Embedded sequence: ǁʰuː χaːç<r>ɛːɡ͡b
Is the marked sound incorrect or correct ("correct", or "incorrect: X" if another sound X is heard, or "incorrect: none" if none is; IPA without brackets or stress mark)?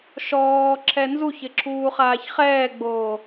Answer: incorrect: χ